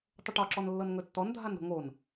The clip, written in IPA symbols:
tˤ ə ʈ ɒ ǁ ɔ n lː ɤ n ŋ ɵ tː ɔ n dʱ a n ɾ o̤ ŋ o n

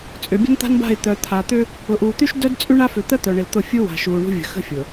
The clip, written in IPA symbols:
t͡sʼ ʏ˨ bʲ ə̤˦ n t̪ a̤˦ n b a̤˦˨ ɪ̯ t̪ œ˨ t̪ʰ a˨ t̪ ʏ˦ | ʊ˨ ʔ uː˨ t̪ y˦ ʃ d œ˦ d t͡sʼ y˦ ɳ a˦ f ʏ˨ t̪ ə˦ t̪ œ˨ ɳ ɪ˨ l t̪ ʊ˦˨ fʲ u˦ w a̤˨ ʃ uː˨ ɳ ṳ˦ vʲ ə̤˨ x ə̤˦ fʲ ʊ˨

